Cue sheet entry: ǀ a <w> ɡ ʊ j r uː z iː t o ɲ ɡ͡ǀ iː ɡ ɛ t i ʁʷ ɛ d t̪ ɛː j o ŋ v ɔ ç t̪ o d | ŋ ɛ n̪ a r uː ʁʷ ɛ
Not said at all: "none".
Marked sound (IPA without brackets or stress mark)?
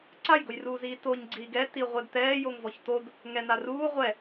j